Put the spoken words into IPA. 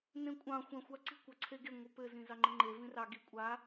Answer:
n ẽ kʷʼ ɑ̃ xʷ ã xʷ a ǀ i̤ kʷ ɑ ǀʰ e ɡ e ŋʷ ɘ p ɘ z ĩ z ɑ ŋ͡ǃ ɘ ŋ͡ǃ e v ĩ r ɑ ɡ i kʷʼ a

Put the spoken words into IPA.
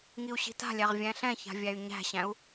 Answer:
ŋ i u̯ ɕ i̤ t a̤ lʲ æ ʁ vʲ æ̃ ɬ ɛ̃ ç a̤ vʲ æ y̯ ɲ æ̤ ɕ æ̃ u̯

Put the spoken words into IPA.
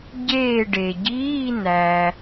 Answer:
ɟ eː˦˨ ɖ e˩ ɟ iː˧˥˧ n æ˩

